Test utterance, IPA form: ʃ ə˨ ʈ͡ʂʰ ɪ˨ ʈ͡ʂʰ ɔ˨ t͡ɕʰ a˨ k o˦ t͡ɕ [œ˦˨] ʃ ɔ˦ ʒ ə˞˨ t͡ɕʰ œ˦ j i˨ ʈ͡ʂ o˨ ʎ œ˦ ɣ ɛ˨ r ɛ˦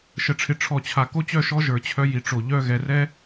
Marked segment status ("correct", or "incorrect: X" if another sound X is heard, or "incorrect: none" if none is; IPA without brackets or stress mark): correct